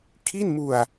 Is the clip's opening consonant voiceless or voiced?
voiceless